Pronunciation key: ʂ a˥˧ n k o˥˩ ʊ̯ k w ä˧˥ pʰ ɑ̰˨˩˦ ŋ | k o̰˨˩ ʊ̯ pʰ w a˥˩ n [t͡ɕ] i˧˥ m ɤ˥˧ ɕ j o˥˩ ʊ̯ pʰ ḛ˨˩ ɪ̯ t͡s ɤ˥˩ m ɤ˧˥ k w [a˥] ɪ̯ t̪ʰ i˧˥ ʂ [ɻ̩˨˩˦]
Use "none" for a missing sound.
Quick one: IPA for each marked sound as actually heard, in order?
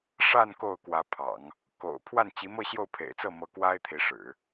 t͡ɕ, a˥, ɻ̩˨˩˦

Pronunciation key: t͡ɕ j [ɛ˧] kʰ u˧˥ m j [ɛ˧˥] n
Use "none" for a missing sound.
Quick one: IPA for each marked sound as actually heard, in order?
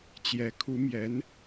ɛ˧˥, ɛ˧˥

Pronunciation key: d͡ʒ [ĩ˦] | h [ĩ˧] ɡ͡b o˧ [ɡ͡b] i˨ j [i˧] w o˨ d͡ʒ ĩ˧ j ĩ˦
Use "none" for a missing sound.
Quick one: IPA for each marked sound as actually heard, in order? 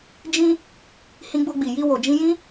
ĩ˦, ĩ˧, ɡ͡b, i˧

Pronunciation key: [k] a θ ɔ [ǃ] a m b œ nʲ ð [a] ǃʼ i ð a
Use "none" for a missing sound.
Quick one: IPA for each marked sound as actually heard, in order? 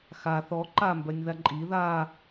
x, ǃ, a

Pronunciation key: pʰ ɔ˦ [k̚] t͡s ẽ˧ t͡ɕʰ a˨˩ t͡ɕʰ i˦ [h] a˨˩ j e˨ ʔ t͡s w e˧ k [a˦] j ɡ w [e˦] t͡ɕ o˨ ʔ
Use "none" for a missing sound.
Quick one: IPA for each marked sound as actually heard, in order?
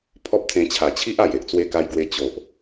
p̚, ʔ, a˧, e˧

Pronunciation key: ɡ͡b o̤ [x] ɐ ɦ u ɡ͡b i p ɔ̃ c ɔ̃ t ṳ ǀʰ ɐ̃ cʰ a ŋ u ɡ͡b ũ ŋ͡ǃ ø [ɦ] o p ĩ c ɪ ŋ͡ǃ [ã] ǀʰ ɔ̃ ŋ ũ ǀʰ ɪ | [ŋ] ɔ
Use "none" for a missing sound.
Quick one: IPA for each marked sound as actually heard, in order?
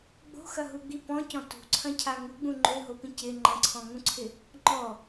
x, ɦ, ɐ̃, ŋ͡ǃ

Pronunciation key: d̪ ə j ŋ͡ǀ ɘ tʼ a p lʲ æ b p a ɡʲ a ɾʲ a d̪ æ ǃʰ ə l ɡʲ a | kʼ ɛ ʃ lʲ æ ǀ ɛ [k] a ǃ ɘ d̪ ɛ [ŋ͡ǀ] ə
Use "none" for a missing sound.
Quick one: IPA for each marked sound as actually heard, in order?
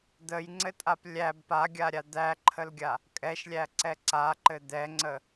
ǀ, ŋ͡ǀ

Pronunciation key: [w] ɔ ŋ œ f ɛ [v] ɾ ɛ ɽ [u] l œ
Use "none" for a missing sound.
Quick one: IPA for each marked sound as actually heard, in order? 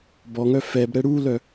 b, b, u

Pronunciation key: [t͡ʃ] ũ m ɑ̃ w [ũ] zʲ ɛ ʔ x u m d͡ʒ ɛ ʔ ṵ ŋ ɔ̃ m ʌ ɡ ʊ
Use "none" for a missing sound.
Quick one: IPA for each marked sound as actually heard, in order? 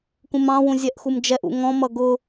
k, ũ

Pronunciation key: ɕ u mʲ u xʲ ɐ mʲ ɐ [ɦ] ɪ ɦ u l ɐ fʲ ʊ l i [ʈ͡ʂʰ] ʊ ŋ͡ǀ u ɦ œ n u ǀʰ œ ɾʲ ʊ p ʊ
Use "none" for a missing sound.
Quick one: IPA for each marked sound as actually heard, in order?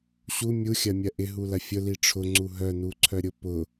ʔ, ʈ͡ʂʰ

